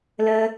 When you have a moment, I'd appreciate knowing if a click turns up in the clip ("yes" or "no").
no